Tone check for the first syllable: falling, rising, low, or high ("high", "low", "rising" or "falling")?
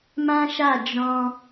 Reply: high